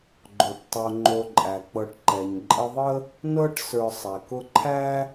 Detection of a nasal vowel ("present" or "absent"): absent